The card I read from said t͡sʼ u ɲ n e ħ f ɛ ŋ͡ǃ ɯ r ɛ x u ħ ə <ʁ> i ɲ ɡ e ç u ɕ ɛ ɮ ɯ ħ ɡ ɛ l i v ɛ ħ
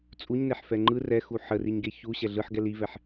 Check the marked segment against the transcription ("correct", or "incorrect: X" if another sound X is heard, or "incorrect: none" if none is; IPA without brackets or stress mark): incorrect: r